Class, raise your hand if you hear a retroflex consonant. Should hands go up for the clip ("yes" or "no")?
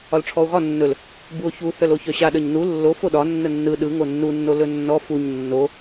yes